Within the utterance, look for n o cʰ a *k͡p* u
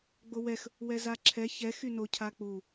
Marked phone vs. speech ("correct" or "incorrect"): correct